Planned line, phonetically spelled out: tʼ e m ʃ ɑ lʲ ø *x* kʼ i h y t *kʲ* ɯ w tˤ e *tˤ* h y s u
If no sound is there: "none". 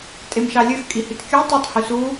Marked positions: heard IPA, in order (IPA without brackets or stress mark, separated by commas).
x, kʲ, tˤ